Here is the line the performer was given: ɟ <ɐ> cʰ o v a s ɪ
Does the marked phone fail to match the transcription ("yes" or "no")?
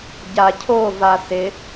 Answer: yes